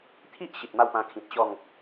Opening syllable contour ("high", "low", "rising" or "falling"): high